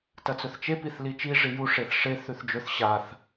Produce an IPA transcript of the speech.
t ɐ t͡s ɵ θ t͡ʃ e p i θ l i t͡ʃ i ʐ i j u ʂ e θ ʂ e θ ʉ θ d͡ʒ ɵ θ ɕ a θ

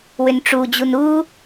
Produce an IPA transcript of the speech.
w ʏ n ʈ͡ʂ u d͡ʑ u n u

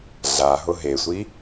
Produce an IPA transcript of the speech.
ɮ a ɦ ʊ ɦ e sʷ i

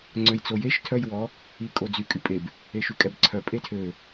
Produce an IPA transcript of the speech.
ŋ͡ǀ ø j t͡s o j e ʃ tʰ œ j w ɔ | i kʼ o d͡z y kʼ y pʼ e b | e ʃ y kʼ ɛ b ǀʰ œ pʼ e tʰ ø

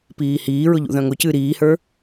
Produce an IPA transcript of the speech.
p iː h iː ɹ ʊ ʎ ṵ ð œ̃ ŋ ʊ c ɨː ɾ iː h ə˞

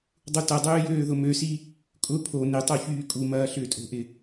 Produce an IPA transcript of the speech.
dˤ u t ɐ dˤ øː j øː ð ʊ m ø s i | kʼ ʊ pʰ o n ɪ tˤ o ç yː kʼ u m ɐː ɬ ʏː tʼ o̤ ʔ ɪ

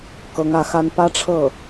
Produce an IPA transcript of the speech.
k ɤ˧˥ ŋ ä˧˥ x a˥ n p ä˥ ʈ͡ʂʰ ɤ˥˩

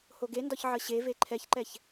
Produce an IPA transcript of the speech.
h o ɡ e n d ɒ ç ʕ ə ɕ e v e ǃʰ ɛ ç ǃ ɛ ç

